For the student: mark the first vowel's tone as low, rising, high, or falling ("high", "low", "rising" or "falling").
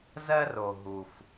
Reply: high